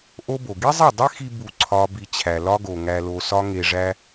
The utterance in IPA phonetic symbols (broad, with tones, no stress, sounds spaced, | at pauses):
ʔ o˦ b o˨ ɡ i˦ zˤ e˦˨ dˤ e˦ x i˧ b u˦˨ ǀʰ ɒ˦ b i˧ t͡ɕʰ æ˨ l ɒ˦ ɡ o˨ ŋ æ˧ l o˧ s ɒ˦ ŋ e˧ ʐ æ˦